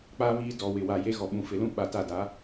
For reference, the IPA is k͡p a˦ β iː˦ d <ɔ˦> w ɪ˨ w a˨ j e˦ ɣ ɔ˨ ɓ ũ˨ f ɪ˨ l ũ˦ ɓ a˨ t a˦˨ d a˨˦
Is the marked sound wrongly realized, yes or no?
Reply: yes